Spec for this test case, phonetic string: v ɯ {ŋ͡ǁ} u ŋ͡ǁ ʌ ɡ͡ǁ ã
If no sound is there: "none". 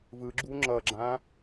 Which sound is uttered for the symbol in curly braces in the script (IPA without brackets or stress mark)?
ɡ͡ǁ